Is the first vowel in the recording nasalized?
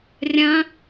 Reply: yes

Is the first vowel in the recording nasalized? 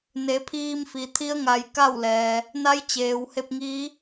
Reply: no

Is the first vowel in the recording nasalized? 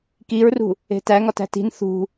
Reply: no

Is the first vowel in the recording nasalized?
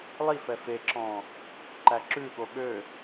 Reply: no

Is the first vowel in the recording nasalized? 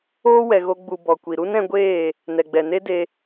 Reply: no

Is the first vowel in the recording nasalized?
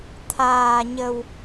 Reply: no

